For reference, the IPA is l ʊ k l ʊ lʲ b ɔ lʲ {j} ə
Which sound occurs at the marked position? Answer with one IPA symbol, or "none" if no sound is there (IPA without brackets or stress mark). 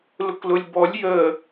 j